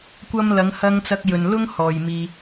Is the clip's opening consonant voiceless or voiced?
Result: voiceless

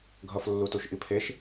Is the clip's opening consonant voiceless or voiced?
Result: voiced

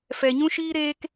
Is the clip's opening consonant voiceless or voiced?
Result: voiceless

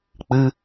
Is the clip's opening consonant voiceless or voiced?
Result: voiceless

